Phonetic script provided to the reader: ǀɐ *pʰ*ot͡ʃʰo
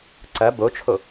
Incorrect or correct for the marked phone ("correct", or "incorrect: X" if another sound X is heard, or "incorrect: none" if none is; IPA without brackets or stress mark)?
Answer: incorrect: b